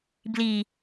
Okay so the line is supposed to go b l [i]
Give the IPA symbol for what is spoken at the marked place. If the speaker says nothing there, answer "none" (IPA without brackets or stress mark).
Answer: i